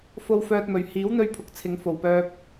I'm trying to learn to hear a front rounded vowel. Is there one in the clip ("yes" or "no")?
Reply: yes